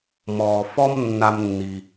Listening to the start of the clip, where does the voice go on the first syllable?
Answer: low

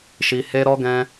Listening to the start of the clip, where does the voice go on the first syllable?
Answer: low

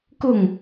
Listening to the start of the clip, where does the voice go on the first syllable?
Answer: falling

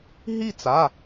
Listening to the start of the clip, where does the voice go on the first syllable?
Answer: falling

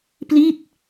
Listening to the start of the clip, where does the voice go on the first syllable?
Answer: falling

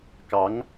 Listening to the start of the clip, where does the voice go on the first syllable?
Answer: rising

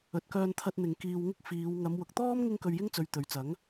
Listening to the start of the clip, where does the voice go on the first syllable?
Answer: low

